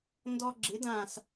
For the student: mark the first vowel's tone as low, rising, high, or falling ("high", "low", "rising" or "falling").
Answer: high